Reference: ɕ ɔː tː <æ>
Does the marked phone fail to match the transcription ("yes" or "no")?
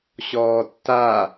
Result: yes